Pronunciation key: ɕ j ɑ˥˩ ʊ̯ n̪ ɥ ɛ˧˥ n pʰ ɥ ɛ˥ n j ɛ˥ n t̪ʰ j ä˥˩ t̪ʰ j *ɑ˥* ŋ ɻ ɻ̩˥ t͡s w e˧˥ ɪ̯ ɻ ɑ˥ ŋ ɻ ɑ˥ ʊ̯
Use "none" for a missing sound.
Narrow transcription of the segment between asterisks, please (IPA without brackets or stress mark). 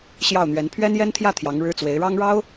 ɑ˧˥